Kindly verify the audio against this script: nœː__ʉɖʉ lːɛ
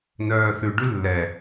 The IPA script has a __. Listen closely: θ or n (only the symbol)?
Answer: θ